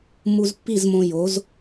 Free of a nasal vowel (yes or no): no